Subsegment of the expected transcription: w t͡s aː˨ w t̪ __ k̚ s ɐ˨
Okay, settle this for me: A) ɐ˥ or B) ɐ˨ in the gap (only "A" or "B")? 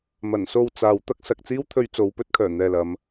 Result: A